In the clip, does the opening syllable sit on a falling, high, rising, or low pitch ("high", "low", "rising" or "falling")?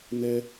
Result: high